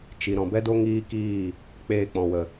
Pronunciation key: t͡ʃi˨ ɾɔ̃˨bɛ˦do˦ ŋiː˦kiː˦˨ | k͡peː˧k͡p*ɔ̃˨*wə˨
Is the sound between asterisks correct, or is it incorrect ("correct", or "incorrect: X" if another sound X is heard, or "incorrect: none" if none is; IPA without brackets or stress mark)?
correct